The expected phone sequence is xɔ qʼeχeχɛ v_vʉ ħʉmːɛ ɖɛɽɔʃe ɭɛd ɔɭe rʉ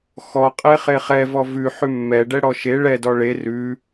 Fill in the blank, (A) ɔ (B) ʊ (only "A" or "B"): A